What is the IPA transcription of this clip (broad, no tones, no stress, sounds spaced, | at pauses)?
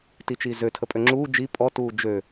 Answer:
t i t͡ʃ iː z ø tʰ ə pʼ ø ŋ͡ǁ uː d͡ʒ i pʼ ɔ t uː d͡ʒ ø